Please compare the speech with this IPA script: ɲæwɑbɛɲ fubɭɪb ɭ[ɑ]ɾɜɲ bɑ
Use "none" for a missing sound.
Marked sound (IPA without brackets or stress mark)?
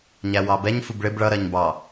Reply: ʌ